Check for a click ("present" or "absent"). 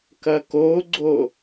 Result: present